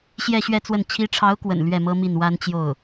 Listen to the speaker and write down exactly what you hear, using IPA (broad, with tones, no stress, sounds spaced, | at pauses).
ɕ j ɛ˥˧ ɕ ɥ ɛ˥˧ t͡s w ə˥˩ n t͡ɕʰ i˧˥ ʈ͡ʂʰ ɑ˧˥ ʊ̯ k w ə̰˨˩ n l ɥ ɛ˥˩ m ɤ˥ m i˥˩ n w a˥ n t͡ɕ j o˥˩ ʊ̯